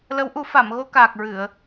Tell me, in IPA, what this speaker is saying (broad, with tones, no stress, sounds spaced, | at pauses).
l ə˧˥ w ʔ u˨˩˦ f a˨˩˨ m ɣ o˧ k aː˨˩ k̚ ɹ ɨ˨˩˨ ə̯